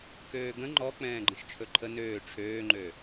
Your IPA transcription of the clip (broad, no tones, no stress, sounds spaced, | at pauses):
k øː ɡ ə̃ ŋ͡ǃ ɔ k͡p ɛ̃ː ɡ͡ǃ ə̃ ʃ t͡ʃʰ ɵ ǃʰ ə n øː ʈ͡ʂʰ øː ŋ͡ǃ ø